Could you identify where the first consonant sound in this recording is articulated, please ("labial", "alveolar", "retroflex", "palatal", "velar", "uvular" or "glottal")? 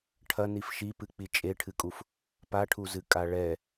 retroflex